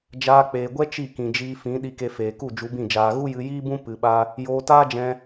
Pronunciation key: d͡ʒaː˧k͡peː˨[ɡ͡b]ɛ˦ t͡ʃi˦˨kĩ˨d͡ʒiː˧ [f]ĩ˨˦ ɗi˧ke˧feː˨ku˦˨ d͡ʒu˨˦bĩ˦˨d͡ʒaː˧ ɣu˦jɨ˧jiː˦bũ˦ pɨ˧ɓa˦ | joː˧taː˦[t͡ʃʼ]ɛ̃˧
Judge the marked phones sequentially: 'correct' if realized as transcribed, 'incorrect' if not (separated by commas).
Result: incorrect, correct, incorrect